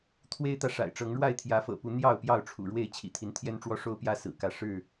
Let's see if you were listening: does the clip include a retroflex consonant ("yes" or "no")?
yes